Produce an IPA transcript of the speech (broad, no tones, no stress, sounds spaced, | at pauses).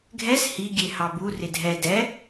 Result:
ɡʱ ɛ s h i ɡʲ e h ɑ b u r ɪ dʱ ɛ d ɛ